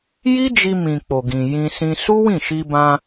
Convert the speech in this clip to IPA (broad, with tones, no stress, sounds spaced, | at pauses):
j i˦ d͡ʒ i˧ m ĩ˨ k͡p o˨ ɡ ĩ˨ j ĩ˧ s ĩ˧ s u˦ w ĩ˦˨ ʃ i˧ b ã˧